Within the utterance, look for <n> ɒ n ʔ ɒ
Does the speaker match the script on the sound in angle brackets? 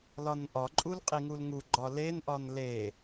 no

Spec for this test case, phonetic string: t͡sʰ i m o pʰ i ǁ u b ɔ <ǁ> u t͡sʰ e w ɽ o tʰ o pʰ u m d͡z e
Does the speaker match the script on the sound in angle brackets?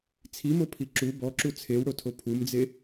yes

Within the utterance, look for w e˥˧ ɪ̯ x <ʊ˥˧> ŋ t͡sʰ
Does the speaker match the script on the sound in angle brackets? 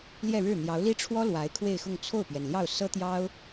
yes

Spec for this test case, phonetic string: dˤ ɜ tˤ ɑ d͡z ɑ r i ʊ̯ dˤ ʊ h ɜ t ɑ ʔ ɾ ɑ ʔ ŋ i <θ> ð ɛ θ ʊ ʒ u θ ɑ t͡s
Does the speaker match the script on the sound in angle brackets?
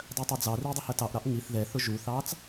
yes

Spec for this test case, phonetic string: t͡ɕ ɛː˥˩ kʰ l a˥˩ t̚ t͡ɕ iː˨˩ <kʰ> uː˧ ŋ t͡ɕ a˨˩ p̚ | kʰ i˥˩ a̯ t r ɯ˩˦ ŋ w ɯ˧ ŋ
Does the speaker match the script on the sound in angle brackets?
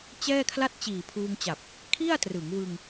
no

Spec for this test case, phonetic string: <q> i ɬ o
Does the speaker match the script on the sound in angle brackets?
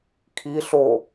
no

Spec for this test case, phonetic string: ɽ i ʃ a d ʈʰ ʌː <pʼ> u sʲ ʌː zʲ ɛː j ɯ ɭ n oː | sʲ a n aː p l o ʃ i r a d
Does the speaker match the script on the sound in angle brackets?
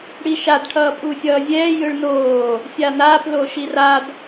yes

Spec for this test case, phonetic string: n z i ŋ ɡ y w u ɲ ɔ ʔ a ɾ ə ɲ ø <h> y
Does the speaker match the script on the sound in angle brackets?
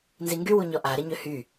yes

